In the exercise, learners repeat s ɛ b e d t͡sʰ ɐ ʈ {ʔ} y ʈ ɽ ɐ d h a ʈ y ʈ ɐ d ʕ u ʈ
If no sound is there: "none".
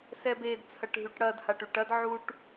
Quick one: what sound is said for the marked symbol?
ɦ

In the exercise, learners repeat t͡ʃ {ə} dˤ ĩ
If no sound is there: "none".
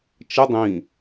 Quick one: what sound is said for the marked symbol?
ə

